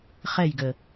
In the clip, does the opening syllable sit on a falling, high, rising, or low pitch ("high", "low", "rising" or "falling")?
falling